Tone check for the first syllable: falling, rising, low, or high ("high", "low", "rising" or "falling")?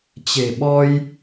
low